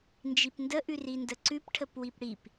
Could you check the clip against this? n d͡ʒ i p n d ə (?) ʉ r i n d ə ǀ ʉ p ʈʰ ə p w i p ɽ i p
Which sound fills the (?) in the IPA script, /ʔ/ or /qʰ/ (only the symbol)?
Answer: ʔ